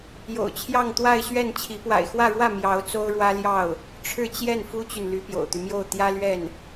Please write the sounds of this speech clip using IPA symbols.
j o̰˨˩ ʊ̯ t͡ɕʰ j ɑ˥˧ ŋ t̪ w a˥˧ ɪ̯ ɕ ɥ ɛ˥˩ n t͡ɕʰ i˧˥ p w a̰˨˩ ɪ̯ x w ä˥˧ ɻ w ä˥˩ m j ɑ˧˥ ʊ̯ t͡s o˥ ʊ̯ ɻ w ä˥ l j ɑ˥˩ ʊ̯ | ʈ͡ʂʰ ɻ̩˥˧ t͡ɕ j ɛ˥˩ n f u˥ t͡ɕ y˨ n l y˧˥ p j o̰˨˩ ʊ̯ t̪ y˦ m j o˥˩ ʊ̯ t̪ j ä˥ l ɥ ɛ˥˩ n

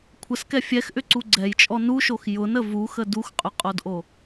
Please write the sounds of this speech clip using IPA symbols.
kʷʰ ə s k ɛ fʲ ɛ x ʔ ʏ ǀ u ɡ͡ǀ ɛ j t͡ʃʼ ɔ n u ʃ o x j ʊ n ə v u x ə d u x qʼ ʏ qʼ o d ʔ o

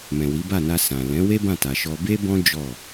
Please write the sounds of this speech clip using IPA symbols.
m ɛ̃˨ w i˨˦ b a˦˨ n a˧ s ã˨ l ɛ̃˨˦ w e˦ b ã˦˨ t a˨ ʃ ɔ˧ b e˦ b ɔ̃˦ d͡ʒ ɔ˦˨

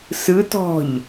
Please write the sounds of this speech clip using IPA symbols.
s ɯ t ɔ̤ ʎ

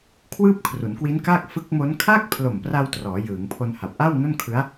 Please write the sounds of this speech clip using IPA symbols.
kʰ w ɯː˥˩ p̚ kʰ r u˩˦ n k w i˦˥ n k aː˥˩ k̚ f ɯ˦˥ k̚ m o˦˥ n kʰ a˥˩ k̚ pʰ l o˨˩ m p r a˧ w t r ɔː˩˦ j ɯː˩˦ ŋ pʰ o˧ n h a˨˩ p̚ ʔ a˥˩ w n o˥˩ n kʰ ɯ˦˥ a̯

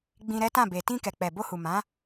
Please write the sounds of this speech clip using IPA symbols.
ɡ͡b ĩ˧ ɾ ɛ˦ t ã˦˨ b e˨ t ĩ˧ k ɛ˨ k͡p ɛ˨ b o˧ h u˨ m ã˨˦

